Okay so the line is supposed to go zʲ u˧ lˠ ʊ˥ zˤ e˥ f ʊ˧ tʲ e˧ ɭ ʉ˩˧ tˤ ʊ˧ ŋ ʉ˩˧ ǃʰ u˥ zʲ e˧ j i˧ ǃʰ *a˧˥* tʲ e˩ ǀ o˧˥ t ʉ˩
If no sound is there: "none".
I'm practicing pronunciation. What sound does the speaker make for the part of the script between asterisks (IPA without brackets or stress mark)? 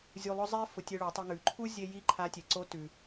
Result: a˧˥